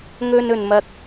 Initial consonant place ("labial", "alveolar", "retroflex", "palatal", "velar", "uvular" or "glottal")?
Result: velar